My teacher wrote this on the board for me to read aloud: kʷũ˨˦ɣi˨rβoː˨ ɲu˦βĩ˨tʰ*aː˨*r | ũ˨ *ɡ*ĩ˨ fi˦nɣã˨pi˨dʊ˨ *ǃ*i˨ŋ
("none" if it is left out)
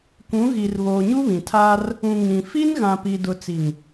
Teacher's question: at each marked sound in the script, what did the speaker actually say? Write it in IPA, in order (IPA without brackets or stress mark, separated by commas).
aː˦, ŋ, t͡s